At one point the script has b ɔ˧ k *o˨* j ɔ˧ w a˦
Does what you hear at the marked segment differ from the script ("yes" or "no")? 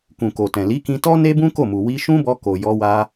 no